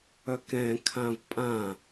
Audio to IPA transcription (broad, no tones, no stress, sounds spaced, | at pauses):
œ k ɛ̃ kʰ ã v pʼ ã